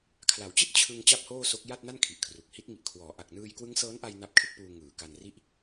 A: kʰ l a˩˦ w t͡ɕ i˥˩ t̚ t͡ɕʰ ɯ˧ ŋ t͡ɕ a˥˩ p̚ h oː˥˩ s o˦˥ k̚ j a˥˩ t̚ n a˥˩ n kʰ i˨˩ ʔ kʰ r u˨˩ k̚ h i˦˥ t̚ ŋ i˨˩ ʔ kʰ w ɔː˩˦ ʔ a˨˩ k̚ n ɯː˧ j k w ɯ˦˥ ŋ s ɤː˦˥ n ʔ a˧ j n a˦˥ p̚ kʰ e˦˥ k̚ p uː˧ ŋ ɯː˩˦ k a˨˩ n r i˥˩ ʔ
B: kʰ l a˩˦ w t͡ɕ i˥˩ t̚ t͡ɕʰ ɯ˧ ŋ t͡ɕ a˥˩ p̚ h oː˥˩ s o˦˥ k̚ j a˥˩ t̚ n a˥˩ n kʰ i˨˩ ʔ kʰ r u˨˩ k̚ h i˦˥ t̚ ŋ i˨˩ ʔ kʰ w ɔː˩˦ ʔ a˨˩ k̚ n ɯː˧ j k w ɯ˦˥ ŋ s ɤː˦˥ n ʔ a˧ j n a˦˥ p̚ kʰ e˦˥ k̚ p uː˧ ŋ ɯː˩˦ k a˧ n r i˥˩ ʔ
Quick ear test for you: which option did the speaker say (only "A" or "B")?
B